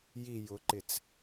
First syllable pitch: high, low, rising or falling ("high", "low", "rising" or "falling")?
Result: low